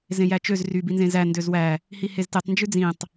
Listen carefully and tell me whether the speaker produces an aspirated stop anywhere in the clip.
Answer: no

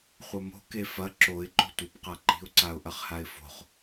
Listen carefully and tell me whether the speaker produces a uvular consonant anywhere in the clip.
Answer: yes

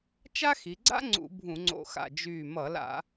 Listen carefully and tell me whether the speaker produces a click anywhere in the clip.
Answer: yes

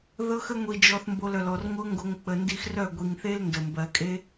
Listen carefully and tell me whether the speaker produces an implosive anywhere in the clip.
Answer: no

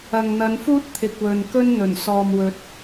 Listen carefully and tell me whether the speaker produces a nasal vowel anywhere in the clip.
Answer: no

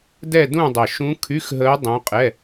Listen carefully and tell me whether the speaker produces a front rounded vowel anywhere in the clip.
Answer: yes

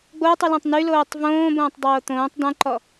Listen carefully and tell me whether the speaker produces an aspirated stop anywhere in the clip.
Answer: no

